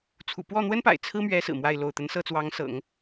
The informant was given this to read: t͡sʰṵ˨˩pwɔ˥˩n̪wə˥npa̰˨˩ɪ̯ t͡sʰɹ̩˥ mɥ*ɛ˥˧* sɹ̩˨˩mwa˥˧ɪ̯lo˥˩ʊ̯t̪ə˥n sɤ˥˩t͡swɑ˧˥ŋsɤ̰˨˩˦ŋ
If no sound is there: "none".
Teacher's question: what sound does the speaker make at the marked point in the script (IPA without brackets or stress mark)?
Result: ɛ˧˥